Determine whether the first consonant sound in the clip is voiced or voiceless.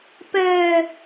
voiceless